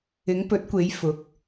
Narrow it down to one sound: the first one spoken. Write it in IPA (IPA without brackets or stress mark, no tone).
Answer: ɪ